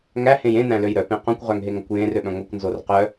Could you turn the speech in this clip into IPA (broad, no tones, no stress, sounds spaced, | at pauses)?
ŋ æ h ẽ j ẽ n æ̃ l ø j ɾ œ p ẽ q õ kʷ ʁ œ ŋ ɦ e ŋ ɐ kʷ j ẽ r ø ɓ œ̃ ŋʷ e kʷ n z o r q œ